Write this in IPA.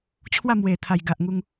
t͡ɕʰ w a˥˧ m w e˨˩ t̪ʰ a˨˩ j ɡ a˨ ʔ ŋ u˧ ŋ

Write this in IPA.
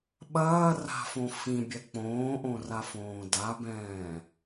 ɓ ɐː r a̤ f õ f ĩ bʲ ɛ k͡p õː ʔ õ r a f õː d a b ɛ̃ː

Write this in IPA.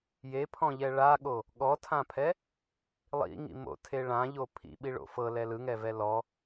j e pʰ ɔ̃ ʎ ɛ ɭ a ɠ o | ɠ ɔ tʰ ã pʰ ɛ | lˠ ḭ ŋ ḭ m o̰ tʰ e ɭ ã ʎ o pʰ ḭ ɓ i ɭ o̰ f ɤ l ɛ l ɯ ŋ ɛ v ɛ l ɔ

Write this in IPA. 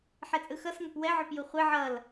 ħ ɛ t͡sʼ ɯ x ʌ s ŋ ʌ p w ɛ ʕ o p j u χʷ e ʕ ʌ l

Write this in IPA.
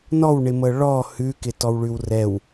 n ɔ w ɳ ɪ m ɤ ɭ ɔ h ʉ k ɪ t ɔ w ɭ ʉ w r ɛ w

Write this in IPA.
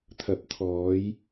t̪ʰ ɐ˨ p̚ t̪ʰ ɔː˨˧ j

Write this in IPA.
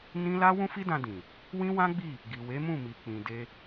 n ĩ˦ l a˦ w ũ˦ f i˦ d ã˧ d ĩ˨ | w ĩ˦ w ã˦ ɡ͡b i˦˨ | ɡ i˨ w e˨˦ m ũ˦˨ m i˨ k͡p ĩ˨ d e˧

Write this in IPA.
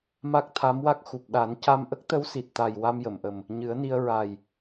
m a˦˥ k̚ t̪ʰ a˧˥ m w a˦˥ k̚ x u˨˩ p̚ ɗ a˨˩˦ n c a˧ m ʔ ə˦˥ k̚ t̪ ə˧˥ w s i˨˩ t̚ t̪ a˨˩ j w a˧ m j ə˨˩˨ m ʔ ə˨˩ m | ɲ ɨ˨˩˦ ə̯ n i˧ ə̯ ɹ a˨˩ j

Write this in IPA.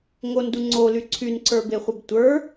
ŋ o n d u ŋ͡ǀ o l y ǀʰ y n ǀ ə˞ b e χʷ ə b tʷ ə˞

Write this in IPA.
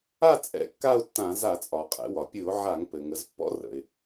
a˥˧ t͡sʼ ɛ̰˧˥ kː a˥˧ ʊ̯ tː ã˧˩˧ z a˧˩˧ t͡sʼ ɒ˩ qʼ ɛ̰˩˧ w ɒ˩ pʲ ɨ˧˩˧ ʊ̯ ʕ a˧˩˧ ŋ p ɘ˩ ŋ ə˩˧ z pː ɔ̰˧˥ r ə̰˩ ɪ̯

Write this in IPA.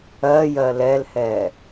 ɜ j ɜ l ɛ l h ɛ

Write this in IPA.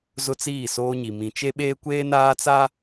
z ʊ˦ t͡s iː˦˨ s oː˦ ɲ i˨ m ĩ˨ t͡ʃ e˦ ɓ eː˦ kʷ eː˦ n aː˦ t͡s a˦

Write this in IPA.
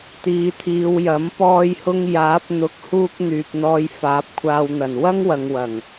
t̪ iː˨˧ t̪ʰ iː˨˧ w j ɐ˨˥ m p ɔː˧ j h ʊ˧ ŋ j aː˨˥ p̚ n̪ ʊ˨˥ k̚ h uː˧ k̚ n̪ yː˨ p̚ n̪ ɔː˧ j f aː˨˥ p̚ kʷʰ aː˧ w n̪ ɐ˨˩ n w ɐ˥ ŋ w ɐ˨ ŋ w ɐ˨˩ ŋ

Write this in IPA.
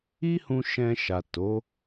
i˦ h ũ˧ ʃ ɛ̃˧ ʃ a˨ t o˨˦

